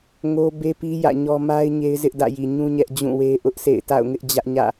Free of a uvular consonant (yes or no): yes